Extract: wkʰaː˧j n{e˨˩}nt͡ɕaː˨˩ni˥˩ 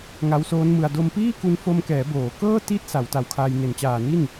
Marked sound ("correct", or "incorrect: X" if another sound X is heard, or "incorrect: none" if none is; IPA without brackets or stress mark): correct